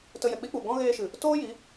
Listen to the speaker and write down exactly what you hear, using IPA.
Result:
t ə˧ j ɛ˨ k͡p i˦ k͡p u˨ ɡ ɔ̃˦ ɣ eː˧ ʃ ɨ˨ | t oː˦ j i˨˦

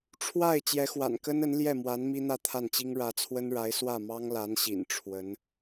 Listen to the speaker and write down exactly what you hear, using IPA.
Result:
ʈ͡ʂʰ w a˥˩ ɪ̯ t͡ɕ j ɛ˧˥ x w a̰˨˩ n k ə˥ n ə˧˥ n l j ɛ˥˩ m w a˧˥ n m i˥ n̪ ä˥˧ t̪ʰ a˥˩ n t͡ɕ i˥ ŋ ɻ ä˧˥ t͡sʰ w ə˥ n ɻ a˧˥ ɪ̯ s w ä˥˩ m ɑ˥ ŋ l a˧˥ n ɕ ḭ˨˩ n ʈ͡ʂʰ w ə˧˥ n

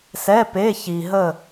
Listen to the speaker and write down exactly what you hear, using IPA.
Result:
s ɛ˧˥˧ p e˧˥˧ ç i˨ ɦ ə˦˨

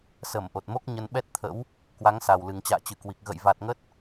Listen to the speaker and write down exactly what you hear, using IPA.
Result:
s ə˧˩ m ʔ o˨˩ t̚ m o˦˥ k̚ ɲ ə˧ n ɓ ɛ˦˥ t̚ t̪ʰ ə̰˧˥ w | k w a˨˦ ŋ s a˨˩ w l ɨ˨˩ ŋ t͡ɕ a̰ː˧˨ t͡ɕ ɨ˧˩ k w i˨˩ k̚ ɣ ə̰˧˨ j v a˨˩ t̚ ŋ ə˦˥ t̚

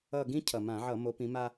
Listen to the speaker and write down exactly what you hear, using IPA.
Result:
ʌ˦˨ ɡ ĩ˥ cʰ ʌ˨˩ m ã˧˩˧ ʕ ʌ˧˩˧ m o˨˦ p ĩ˨˦ m a˥

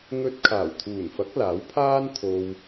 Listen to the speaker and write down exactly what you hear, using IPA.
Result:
ŋ ɵ˧ t̚ kʰ aː˨˩ w t̪ʰ uː˨˩ n f ɐ˨˥ k̚ l aː˨˥ w pʰ aː˥ n t̪ʰ o˧ w

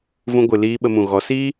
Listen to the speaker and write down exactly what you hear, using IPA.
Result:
v ũ˧ ɡʷ ɨ˨ l iː˧ ɓ ə˧ m ũ˨ ɣ ɔ˨˦ s iː˦

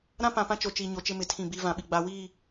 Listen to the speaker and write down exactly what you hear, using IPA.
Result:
ɾ ã˦ p ã˨ p ã˦ t͡ʃ o˨ t͡ʃ iː˨ ɲ o˨ t͡ʃ ɪ˦ m ɪ˨ tʰ ĩ˦˨ b iː˦ v ã˨ ɓ i˨ ɡ͡b a˨ w iː˦˨

